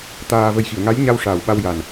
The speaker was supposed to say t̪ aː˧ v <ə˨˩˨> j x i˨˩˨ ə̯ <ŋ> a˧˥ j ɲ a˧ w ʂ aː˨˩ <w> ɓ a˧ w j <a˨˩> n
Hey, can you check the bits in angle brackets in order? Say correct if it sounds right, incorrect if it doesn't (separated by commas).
incorrect, correct, correct, correct